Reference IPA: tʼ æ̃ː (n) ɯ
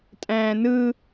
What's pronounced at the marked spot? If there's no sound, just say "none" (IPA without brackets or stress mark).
n